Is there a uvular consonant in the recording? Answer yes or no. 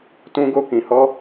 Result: no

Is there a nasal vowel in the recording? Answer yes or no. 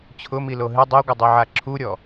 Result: no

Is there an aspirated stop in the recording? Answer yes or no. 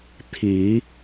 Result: yes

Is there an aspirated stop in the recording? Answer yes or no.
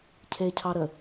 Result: yes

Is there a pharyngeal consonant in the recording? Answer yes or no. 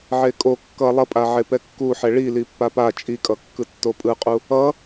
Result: yes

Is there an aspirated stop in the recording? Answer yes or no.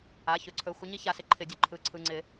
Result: yes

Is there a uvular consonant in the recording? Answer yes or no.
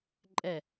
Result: no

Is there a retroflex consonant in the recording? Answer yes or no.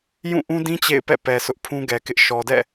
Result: no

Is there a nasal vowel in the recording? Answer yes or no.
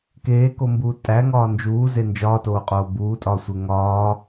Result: no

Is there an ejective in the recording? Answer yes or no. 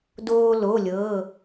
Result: no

